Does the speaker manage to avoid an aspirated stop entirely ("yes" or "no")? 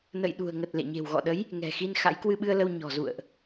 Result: yes